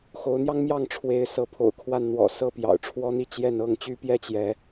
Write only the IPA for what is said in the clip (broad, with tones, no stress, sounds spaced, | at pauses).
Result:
x o˨˦ ʊ̯ n̪ j ɑ˦ ŋ m j ɑ˥˨ ŋ ʈ͡ʂʰ w e˨˦ ɪ̯ s ɤ˨˦ pʰ o̰˨˩ ʊ̯ kʰ w a˥˨ n n̪ w ɔ̰˨˩ s ɤ˥˨ p j ɑ̰˨˩ ʊ̯ ʈ͡ʂʰ w ɔ˦ n̪ i˦ t͡ɕ j ɛ˥˨ n ɤ˥˨ ŋ t͡ɕ y˦ p j ɛ˦ t͡ɕ j ɛ˨˦